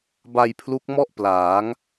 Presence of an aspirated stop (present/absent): present